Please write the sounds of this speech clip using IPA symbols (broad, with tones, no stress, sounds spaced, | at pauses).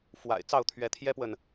f w a̰˨˩ ɪ̯ t͡s ɑ˥˨ ʊ̯ t̪ʰ ɥ ɛ˨˦ t̪ʰ j ɛ˦ p w ə˨ n